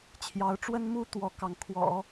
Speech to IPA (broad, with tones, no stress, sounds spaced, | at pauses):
t͡ɕʰ j ɑ˧˥ ʊ̯ ʈ͡ʂ w ə˥ n m u˥ t̪ w ɔ˥ k ɑ˥˩ ŋ kʰ w ɔ̰˨˩˦